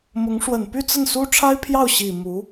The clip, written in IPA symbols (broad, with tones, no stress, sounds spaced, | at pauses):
m ʊ˧˥ ŋ ʂ w ə˨˩ n p y˥˧ t͡s ə˥˩ n s u˥ ʈ͡ʂʰ a˥ ɪ̯ pʰ j ɑ˥˩ ʊ̯ ɕ i˨˩ m u˧˥